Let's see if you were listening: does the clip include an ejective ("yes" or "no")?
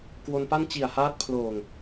no